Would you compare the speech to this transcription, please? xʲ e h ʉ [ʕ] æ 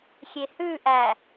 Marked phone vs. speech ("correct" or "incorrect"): incorrect